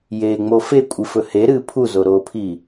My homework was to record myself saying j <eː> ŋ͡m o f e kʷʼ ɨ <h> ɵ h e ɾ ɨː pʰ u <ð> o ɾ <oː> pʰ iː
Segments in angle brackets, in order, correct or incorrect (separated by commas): correct, incorrect, incorrect, correct